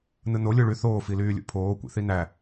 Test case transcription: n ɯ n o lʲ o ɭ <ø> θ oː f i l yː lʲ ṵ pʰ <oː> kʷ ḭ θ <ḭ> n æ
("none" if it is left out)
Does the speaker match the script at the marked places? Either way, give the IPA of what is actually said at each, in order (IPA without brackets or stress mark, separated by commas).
y, oː, i